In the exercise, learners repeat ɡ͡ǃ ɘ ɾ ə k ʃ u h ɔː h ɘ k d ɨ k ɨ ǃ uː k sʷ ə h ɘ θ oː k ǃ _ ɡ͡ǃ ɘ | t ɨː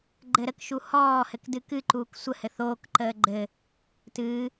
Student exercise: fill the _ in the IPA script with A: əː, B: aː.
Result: A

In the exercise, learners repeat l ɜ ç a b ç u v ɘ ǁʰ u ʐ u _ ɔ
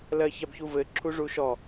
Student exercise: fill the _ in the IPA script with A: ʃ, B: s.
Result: A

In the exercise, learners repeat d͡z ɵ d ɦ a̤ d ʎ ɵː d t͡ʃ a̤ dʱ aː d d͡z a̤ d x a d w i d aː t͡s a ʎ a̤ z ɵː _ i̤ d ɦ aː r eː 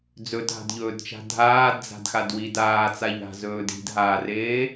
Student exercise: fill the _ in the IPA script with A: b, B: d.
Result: B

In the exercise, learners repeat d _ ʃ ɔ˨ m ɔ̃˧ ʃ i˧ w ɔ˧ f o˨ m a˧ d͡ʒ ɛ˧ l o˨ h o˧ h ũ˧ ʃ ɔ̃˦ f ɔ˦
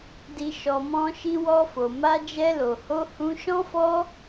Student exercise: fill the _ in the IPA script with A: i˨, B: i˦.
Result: A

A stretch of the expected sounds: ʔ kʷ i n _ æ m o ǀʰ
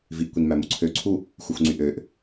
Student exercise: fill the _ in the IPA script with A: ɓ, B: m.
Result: B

